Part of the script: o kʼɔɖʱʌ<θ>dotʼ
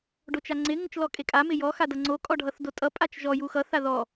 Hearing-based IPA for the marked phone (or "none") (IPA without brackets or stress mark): θ